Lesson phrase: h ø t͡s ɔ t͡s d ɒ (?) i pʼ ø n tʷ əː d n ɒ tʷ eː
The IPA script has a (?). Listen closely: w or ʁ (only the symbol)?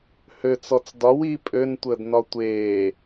w